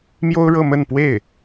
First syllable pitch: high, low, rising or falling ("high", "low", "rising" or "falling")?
high